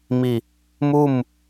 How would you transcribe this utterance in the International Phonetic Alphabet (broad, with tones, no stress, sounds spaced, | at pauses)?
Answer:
m i˧˩ | m u˥˨ m